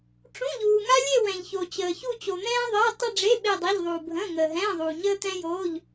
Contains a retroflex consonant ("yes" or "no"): yes